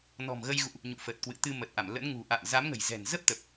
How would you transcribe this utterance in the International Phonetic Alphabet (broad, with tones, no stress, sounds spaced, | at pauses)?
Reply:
n ɔ̤˨˩ m ɣ ə˧ j ɣ ṵ˧˨ ʔ | ɲ ṵ˧˨ f ə˨˩ t̚ k w ɨ̰˧˨ t̪ ɨ˧ m ə˨˩ t̚ ʔ a˧˩ m l ə̰˧˥ n ŋ ṳ˨˩ ʔ a̰ː˧˨ m z a˨˦ m ŋ ə̤˨˩ j z ɛ̤˨˩ n z ə˦˥ p̚ t̪ ə˨˩ p̚